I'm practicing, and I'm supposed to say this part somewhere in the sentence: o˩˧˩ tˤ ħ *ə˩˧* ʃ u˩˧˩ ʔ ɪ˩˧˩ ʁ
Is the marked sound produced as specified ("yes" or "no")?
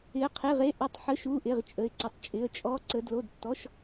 no